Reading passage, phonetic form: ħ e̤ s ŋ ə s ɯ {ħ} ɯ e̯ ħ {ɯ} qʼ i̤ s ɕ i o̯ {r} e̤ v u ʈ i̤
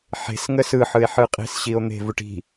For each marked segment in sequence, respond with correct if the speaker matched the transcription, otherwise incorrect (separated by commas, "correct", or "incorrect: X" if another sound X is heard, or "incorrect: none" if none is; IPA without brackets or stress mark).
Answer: correct, correct, incorrect: n̪